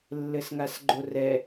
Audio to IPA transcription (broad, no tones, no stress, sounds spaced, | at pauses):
lː ɘ s ŋ a s ɡ͡ǃ o r ɛ